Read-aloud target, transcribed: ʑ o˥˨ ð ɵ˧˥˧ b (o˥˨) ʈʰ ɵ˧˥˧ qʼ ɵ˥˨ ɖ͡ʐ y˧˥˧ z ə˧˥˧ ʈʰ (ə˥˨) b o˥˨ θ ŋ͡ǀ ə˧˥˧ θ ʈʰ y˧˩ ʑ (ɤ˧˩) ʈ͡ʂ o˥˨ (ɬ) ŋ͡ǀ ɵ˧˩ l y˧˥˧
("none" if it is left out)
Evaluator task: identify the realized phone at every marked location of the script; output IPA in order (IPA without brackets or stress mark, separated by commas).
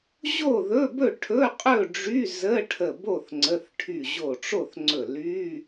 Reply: ɵ˥˨, ə˧˩, o˧˩, θ